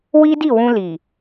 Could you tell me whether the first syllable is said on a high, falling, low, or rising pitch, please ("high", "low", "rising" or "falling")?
high